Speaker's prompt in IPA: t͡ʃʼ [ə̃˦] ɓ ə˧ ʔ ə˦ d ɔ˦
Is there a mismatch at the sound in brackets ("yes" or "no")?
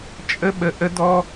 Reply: yes